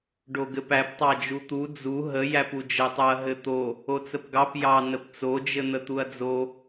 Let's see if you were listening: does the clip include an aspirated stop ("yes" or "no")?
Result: no